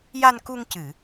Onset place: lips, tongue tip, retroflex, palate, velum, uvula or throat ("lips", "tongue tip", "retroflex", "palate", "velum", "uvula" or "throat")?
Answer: palate